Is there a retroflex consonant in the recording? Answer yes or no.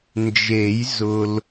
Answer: no